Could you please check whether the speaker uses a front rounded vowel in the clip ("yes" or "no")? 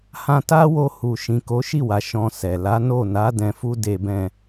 no